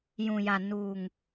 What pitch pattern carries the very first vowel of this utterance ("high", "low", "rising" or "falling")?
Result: low